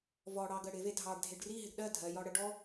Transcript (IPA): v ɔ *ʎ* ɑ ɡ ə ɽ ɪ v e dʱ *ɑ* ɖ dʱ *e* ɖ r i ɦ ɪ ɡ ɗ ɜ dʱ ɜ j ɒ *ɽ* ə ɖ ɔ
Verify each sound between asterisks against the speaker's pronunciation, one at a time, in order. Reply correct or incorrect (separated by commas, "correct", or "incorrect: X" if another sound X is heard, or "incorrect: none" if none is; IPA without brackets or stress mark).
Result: incorrect: ɽ, correct, correct, correct